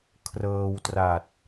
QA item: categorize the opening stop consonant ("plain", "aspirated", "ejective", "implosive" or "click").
aspirated